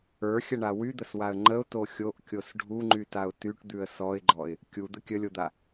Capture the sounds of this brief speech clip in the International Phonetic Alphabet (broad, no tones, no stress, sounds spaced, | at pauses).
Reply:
ə˞ xʲ ə ɳ a w y d̪ ə s w a ə̯ ŋ͡ǃ ə ʊ̯ t o xʲ o ʔ kʲ o s ɖʱ u ŋ͡ǃ y t a ʊ̯ t y ʈ d̪ ʉ ə̯ s ɔ ɪ̯ ɡ͡ǃ ɔ ɪ̯ | kʲ u d̪ ə kʲ ə lʲ o d̪ a